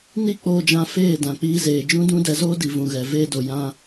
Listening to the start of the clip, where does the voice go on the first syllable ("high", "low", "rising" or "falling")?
high